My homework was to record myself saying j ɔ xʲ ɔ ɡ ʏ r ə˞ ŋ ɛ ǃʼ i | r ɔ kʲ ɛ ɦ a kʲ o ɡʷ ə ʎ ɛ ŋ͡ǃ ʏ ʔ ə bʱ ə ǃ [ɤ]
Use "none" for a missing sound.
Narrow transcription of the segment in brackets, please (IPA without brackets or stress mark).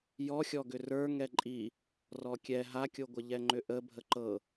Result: ɤ